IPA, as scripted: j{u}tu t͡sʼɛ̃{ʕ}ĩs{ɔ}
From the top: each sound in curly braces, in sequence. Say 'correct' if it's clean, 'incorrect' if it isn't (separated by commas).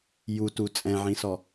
correct, correct, correct